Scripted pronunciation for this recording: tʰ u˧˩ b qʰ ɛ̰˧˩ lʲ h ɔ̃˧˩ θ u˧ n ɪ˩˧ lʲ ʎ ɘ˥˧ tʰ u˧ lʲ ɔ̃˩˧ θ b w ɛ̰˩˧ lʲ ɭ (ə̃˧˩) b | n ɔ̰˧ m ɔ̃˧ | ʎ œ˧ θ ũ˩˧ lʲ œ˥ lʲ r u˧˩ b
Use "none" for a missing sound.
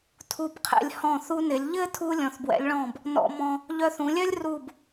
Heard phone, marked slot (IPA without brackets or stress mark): ɔ̃˧˩